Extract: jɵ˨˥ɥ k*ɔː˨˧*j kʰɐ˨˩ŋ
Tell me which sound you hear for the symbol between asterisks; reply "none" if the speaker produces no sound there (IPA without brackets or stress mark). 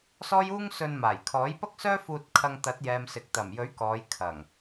ɔː˨˧